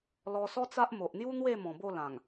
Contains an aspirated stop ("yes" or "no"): no